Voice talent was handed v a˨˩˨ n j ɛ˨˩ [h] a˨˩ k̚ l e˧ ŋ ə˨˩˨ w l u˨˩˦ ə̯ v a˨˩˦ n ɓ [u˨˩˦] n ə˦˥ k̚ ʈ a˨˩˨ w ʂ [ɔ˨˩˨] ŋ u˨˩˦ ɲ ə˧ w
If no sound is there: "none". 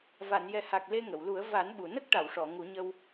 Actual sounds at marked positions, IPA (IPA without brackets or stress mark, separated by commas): h, u˨˩˨, ɔ˨˩˨